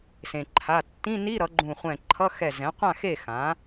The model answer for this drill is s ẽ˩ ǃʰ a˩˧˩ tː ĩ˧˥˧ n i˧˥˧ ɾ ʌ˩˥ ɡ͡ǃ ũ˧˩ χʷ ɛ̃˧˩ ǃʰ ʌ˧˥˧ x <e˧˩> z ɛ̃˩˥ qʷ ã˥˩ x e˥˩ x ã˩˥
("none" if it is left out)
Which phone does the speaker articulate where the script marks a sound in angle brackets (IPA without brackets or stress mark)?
ɛ˧˩